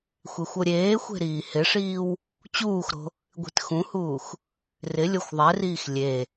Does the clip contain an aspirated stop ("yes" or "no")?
no